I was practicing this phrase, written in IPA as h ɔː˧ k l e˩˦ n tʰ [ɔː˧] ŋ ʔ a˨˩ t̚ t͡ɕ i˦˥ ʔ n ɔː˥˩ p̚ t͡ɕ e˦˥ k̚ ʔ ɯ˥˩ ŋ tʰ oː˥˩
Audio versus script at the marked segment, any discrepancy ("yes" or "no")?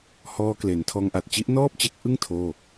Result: no